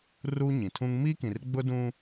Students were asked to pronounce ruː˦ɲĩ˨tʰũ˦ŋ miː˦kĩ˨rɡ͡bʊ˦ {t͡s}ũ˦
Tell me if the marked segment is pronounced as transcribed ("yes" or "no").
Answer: no